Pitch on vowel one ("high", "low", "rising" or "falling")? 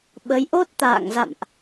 rising